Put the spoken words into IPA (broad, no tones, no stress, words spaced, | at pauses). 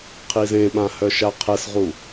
qʰizẽɓã hœʃaqʰɛsʁu